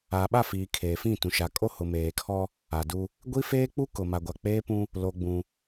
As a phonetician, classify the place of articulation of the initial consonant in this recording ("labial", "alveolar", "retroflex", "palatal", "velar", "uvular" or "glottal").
labial